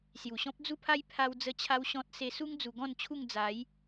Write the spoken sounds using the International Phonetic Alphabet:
s j u˨˩ ɕ ɔ̃˦ p̚ d͡z u˦ pʰ a˦ j pʰ a˦ w d͡z ə˥˧ t͡ɕʰ a˦ w ɕ ɔ̃˦ t̚ s e˧ s u˦ ŋ d͡z u˧ ɡ ɔ̃˥˧ n t͡ɕʰ u˥˧ ŋ d͡z a˨˦ j

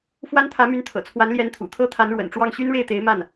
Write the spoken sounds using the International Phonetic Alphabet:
f w a˥ n t̪ʰ ä˧˥ m y˧˥ n t̪ʰ ɤ̰˨˩ t͡sʰ w a˧˥ n l j ɛ˧˥ n t̪ʰ ṵ˨˩ t̪ʰ ɤ˥ t̪ʰ a˧˥ n ɻ w ə̰˨˩ n ʈ͡ʂ w ɑ˥˩ ŋ ɕ y˥ n ɻ e˥˩ ɪ̯ t̪ e˧˥ ɪ̯ m a˥˩ n

